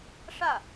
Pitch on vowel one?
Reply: falling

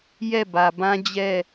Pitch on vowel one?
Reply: falling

